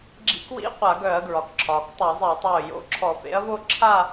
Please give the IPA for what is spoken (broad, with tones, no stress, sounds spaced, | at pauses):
ɡ͡ǁ ḭ˨˥ k w ḭ˧˥˧ qʷ a˧˩˧ ɡ œ˧˩˧ ɐ̯ ɡ ɹ ɒ˩ k ǁʰ ɒː˩ k tˤ œ˧˩˧ zˤ i˧˩˧ ɐ̯ tˤ oː˧˩ j o̰˨˥ ǁʰ ɔ˧˩˧ f ḛ˨˥ ɐ̯ v o˥˧ ǁʰ a˥˧